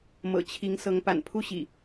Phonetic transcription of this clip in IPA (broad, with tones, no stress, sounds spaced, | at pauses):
m ɤ̰˨˩ t͡ɕʰ i˨˦ ŋ s ɤ˨˦ ŋ p a̰˨˩ n pʰ u˦ ɕ ḭ˨˩